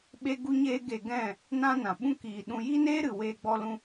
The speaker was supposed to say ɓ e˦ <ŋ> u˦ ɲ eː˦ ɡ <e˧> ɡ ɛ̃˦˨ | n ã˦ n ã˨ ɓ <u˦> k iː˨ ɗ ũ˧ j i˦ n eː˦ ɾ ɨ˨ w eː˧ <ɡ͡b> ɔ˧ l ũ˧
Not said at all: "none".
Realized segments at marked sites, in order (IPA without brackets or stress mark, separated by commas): ɡ, e˧, ũ˦, ɡ͡b